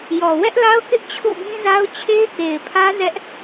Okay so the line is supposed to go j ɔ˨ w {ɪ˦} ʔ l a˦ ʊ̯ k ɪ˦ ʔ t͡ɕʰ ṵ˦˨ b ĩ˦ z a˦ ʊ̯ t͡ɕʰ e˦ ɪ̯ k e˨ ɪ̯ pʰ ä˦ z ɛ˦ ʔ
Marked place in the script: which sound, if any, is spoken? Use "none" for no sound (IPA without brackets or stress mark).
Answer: ɛ˦